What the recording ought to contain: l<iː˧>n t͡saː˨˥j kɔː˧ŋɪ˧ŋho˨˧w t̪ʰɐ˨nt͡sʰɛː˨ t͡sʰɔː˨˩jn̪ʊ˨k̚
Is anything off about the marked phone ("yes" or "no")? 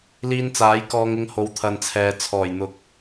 no